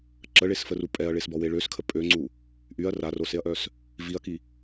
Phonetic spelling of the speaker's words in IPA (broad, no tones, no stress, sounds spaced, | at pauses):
ǁ ə ɭ e s f ə r u pʼ ɛ ɐ̯ ɭ e s b ɔ w e ɭ ø s kʰ ə pʼ ø ŋ͡ǀ u | ʔ y ɐ̯ r a r o s e ɐ̯ ʔ œ s | v i ɐ̯ k i